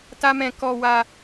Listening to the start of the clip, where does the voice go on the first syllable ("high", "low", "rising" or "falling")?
high